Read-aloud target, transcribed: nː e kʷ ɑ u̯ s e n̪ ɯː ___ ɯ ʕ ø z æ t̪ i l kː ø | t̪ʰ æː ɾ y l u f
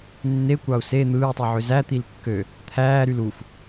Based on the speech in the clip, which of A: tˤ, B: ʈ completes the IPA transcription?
A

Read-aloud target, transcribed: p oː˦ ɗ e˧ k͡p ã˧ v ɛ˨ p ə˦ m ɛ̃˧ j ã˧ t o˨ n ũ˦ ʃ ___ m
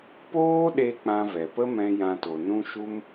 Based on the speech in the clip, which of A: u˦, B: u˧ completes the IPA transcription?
A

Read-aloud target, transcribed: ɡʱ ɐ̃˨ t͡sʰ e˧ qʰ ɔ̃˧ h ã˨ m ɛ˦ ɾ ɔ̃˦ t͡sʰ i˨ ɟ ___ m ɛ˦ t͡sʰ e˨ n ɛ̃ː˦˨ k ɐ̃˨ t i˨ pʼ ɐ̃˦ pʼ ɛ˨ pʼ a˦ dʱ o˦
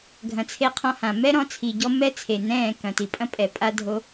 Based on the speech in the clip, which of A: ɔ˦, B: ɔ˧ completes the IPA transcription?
A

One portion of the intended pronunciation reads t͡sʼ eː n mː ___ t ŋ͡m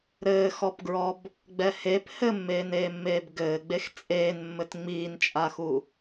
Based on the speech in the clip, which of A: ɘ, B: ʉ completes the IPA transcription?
A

